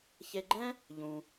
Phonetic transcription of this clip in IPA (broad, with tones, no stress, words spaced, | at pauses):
çe˧ɡ͡ǃɛ̃˥ | ʎũ˧